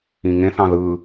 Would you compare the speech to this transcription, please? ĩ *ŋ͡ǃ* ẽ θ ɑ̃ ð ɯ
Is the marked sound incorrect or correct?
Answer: incorrect: ŋ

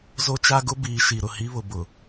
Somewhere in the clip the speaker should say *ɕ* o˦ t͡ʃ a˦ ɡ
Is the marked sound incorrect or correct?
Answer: incorrect: z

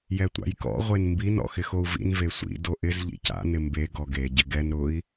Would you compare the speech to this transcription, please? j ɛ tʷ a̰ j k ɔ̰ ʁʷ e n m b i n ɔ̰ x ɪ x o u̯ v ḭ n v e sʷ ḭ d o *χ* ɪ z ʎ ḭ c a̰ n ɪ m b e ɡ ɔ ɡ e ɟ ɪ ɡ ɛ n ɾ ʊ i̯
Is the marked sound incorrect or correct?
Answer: incorrect: ʔ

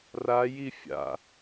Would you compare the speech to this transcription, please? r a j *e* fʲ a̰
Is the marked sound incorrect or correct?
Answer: incorrect: i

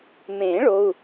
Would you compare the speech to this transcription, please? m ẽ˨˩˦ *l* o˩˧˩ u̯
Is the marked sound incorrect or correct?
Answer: incorrect: ɭ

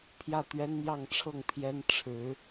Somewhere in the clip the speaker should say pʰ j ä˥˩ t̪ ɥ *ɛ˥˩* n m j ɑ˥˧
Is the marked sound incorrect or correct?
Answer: incorrect: ɛ˥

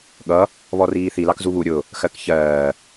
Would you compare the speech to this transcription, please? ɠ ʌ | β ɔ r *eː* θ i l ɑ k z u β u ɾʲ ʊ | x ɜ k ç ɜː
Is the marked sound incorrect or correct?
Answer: incorrect: iː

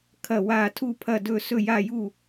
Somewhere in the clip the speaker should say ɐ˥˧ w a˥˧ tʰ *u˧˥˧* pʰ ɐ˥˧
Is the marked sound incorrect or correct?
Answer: incorrect: u˥˧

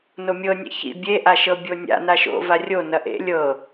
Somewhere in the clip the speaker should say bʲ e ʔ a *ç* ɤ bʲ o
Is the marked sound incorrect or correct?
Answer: incorrect: ʃ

